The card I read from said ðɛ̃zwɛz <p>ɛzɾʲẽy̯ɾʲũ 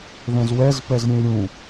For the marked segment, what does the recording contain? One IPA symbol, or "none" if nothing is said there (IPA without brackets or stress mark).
p